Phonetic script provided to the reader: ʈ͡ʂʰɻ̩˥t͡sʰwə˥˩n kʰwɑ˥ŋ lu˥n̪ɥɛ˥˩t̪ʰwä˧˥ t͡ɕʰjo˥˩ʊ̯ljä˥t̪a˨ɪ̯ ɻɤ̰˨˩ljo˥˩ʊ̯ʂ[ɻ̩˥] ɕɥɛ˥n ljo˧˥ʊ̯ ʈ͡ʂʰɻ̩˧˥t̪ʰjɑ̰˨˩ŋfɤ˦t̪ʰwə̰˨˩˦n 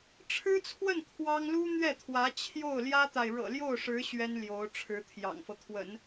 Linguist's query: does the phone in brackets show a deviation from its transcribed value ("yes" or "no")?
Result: yes